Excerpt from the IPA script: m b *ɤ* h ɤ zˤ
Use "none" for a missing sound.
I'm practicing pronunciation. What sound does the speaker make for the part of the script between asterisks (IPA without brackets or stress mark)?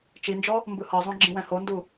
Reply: ɯ